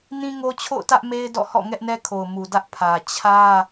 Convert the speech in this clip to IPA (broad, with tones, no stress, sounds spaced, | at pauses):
n ĩ˦ ŋ o˦ t͡ɕʰ o̰˦˨ ʊ̯ t ä˦ ʔ m e˦ ɪ̯ d ɔ̰˦˨ h ɔ̰˦˨ ŋ ɛ˦ ʔ n ɛ˦ kʰ o˨ ʊ̯ m u˨ d ä˦ ʔ pʰ ä˨ t͡ɕʰ ä˦